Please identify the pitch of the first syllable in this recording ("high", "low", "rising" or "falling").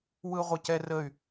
high